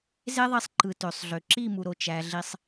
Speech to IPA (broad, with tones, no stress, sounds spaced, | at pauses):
z e˦ ðˤ i˧ sˤ ǃ ɯ˨ t ø˨ sˤ ɮ ø˨ ǁ i˦˨ m u˨ ɾ o˨ t͡ʃ æ˨ ɮ i˧ sˤ